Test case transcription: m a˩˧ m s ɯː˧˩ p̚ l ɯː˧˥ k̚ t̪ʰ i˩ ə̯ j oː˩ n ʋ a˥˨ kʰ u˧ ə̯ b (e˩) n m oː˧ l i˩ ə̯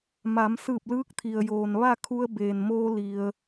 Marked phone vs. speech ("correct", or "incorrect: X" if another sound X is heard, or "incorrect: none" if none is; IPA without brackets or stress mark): incorrect: eː˩